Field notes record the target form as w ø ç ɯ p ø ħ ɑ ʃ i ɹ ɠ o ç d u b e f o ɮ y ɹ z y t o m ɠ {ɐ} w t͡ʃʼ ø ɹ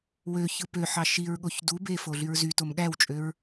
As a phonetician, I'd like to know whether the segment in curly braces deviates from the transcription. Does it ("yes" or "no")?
yes